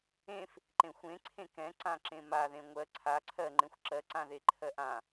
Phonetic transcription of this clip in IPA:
ẽ f | ǃ ẽ xʷ ẽ ǀʰ ẽ k ɛ̃ ǀ ã ǁ ẽ m a ð ẽ ŋʷ ɜ ǀʰ a ǀʰ ɜ ŋ͡ǃ ẽ xʷ ǁ ɜ ǀ ã ð e ǃʰ ɜ ʔ ã

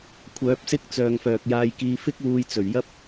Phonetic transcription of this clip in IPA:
kʷʰ œː˨˥ p̚ s ɪ˥ k̚ t͡s œː˨ ŋ f œː˨ k̚ j aː˧ j k iː˧ f ɪ˥ k̚ w uː˧ j t͡s ɵ˨˩ ɥ j ɐ˥ p̚

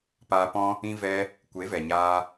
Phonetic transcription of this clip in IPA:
p aː˧ p ɔ̃˦ | ĩ˧ v ɛ˧ | kʷ e˨˦ v ɛ˨ ɲ aː˧

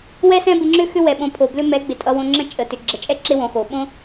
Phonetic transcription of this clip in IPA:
w ɛ˦ s ɛ̃˦ b ɪ˧ ŋ͡ǁ ʏ˦ x ʏ˦ w ɛ˨ ɓ õ˨˦ pʰ o˨ b l ʏ˦ m ɛ˨˦ ɡ͡b ɪ˨ tʼ ʌ˧ w õ˧ ŋ͡ǁ ə̃˦ t͡ʃʼ ə˨ t ʏ˨ ɡ͡ǁ ə˨ t͡ʃʼ ɛ˦ ǁ ɪ˦ w õ˧ x o˨ ɓ õ˦

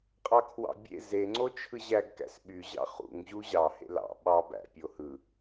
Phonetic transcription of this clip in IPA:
qʼ ɑ kʰ w ɑ̰ bʲ ḛ z e ŋ͡ǀ o t͡ʃʰ ɯ ʑ æ ɡ k æ̰ s ɓ y ʑ ɑ̰ χ ṵ ŋ ʑ u ʑ ɑ h ḛ l ɑ̰ ɓ ɑ b æ̰ pʲ o h ɯ

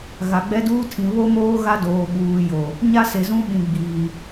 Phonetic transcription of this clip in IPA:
ɣ a˨ ɡ͡b ɛ˦ d uː˦ tʰ ĩ˨ β o˦ m oː˦ ɣ a˦ d oː˨ ɓ uː˨ j o˨ | ɲ a˦ s e˨ z ũ˦ ɓ ĩ˨ ɡ͡b iː˨

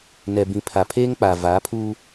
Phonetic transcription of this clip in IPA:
n ɛ˨ b ĩ˨ pʰ a˨ pʰ eː˦ ŋ k͡p a˨ v aː˨˦ pʰ uː˦

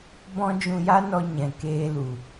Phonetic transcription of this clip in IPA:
b ɔ̃˧ d͡ʒ ũ˧ j a˦ n ɔ˧ ɲ ɛ̃˨ k eː˧ l u˨

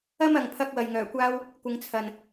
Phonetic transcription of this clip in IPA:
ɐ˥ m ɐ˨ ŋ pʰ ɐ˧ k̚ w ɐ˨ j ŋ œː˨˩ kʷ aː˥ w | kʷ ɪ˧ ŋ t͡sʰ ɐ˨ n

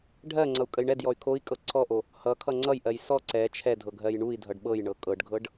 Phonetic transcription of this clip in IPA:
ɖʱ ɜ ŋ͡ǀ ʌ u̯ kʼ ə j ɳ ɛ d j ɔ y̯ kʰ o i̯ kʼ ɤ ǀʰ ɔ ʔ o | h ʌ kʰ ʌ ŋ͡ǀ ʌ j ʔ ɜ j s ɔ ǀ ɛ t͡ʃʰ ɛ dʱ ɤ ɡʱ ɜ j ɳ u i̯ dʱ ʌ ɖ ɓ ɤ j ɳ ɤ kʼ ɤ ɖ ɡʱ ɤ ɖ

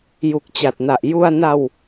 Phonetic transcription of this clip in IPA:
j u˨˩ k̚ t͡ɕ a˨˩ t̚ n a˨˩ ʔ j u˧ a̯ n a˧ w

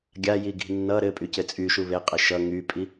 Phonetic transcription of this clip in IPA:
ɡʲ a j i ɡ i̤ nː ʌ ɾ ɘ pʼ y c ɘ t͡sʼ y ʃ u β e qʼ ɘ ʃ ʌ ŋ y pʼ i

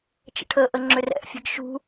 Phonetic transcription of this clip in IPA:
t͡ʃ ə̰ ʈʰ ə ʔ ə ŋ͡ǁ ʏ r ɛ̰ ʔ fʲ ə̤ ɡ ʃ ṳ

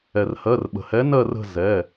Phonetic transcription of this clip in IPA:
ɛ˩ r h ɜ˩˧˩ r ɓ ə̤˩ h ɛ˨˥ n ɜ˦˨ r ə̤˦˨ z ɛ˩˧˩

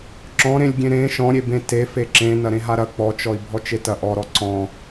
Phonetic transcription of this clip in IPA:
ǁ ɔ̃ ɾ ẽ lʲ ɡʲ ẽ ɾ ẽ ʃ ɔ̃ ɾʲ e b ẽ t e f e ǁ ẽ n ɐ ɾ ẽ ɦ a ɾ ɐ k͡p ɔ t͡ʃ ɔ i̯ bʱ ɔ t͡ʃ e t ɐ ʔ ɔ ɾ ɔ ǀ ɔ̃

